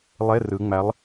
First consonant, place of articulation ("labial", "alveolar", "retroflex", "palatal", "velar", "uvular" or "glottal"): alveolar